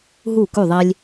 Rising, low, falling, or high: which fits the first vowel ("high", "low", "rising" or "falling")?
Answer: falling